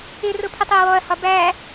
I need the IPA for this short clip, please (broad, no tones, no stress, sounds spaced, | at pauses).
ɪ r ʊ pʰ ɪ tˤ ɪ ɐ̯ w ɔ ɐ̯ h ɒ b æ